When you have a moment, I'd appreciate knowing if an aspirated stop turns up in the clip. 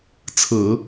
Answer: yes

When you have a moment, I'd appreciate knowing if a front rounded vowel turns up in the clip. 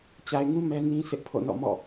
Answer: no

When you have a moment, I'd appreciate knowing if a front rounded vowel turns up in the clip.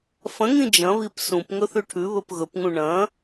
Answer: no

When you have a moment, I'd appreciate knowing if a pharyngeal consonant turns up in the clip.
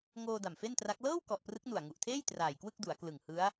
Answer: no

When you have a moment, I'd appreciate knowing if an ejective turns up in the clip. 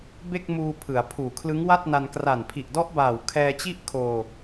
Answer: no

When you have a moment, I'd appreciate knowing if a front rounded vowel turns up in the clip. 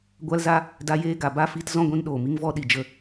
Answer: no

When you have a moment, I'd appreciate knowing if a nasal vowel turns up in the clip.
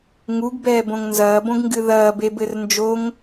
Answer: yes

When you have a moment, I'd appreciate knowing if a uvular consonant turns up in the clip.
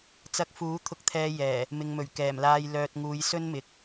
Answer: no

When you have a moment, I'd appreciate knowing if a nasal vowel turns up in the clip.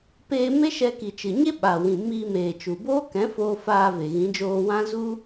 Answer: yes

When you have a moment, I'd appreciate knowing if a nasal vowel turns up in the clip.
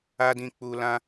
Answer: yes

